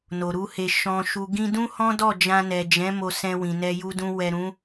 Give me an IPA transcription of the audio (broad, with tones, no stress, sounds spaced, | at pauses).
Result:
n o˨ ɾ u˧ h e˨ ʃ ɔ̃˨ ʃ u˨ ɡ ĩ˧ d ũ˦ h ɔ̃˦ d ɔ˦˨ d͡ʒ ã˧ n ɛ˨ d͡ʒ ɛ̃˨˦ m o˧ s ɛ̃˧ w ĩ˨ n ɛ˧ j u˧ d ũ˧ w ɛ˨ ɾ ũ˨˦